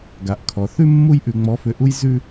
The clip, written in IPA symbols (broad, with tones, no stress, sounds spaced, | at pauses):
ɡ a˧ ʔ kʰ ɔ˧ θ ʉ˥ mː u˥ j ʔ ʉ˧ ŋ͡m ɔ˧˥ f ʏ˧ ʔ u˥ j z ʉ˥